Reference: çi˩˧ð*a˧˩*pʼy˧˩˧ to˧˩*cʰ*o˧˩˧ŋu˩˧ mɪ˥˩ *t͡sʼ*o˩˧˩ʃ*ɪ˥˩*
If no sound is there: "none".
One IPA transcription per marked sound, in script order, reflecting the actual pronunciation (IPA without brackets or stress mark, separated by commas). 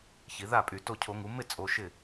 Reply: a˥˩, cʰ, t͡sʼ, ɪ˥˩